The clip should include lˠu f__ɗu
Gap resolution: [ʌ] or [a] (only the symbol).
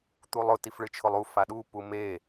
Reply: a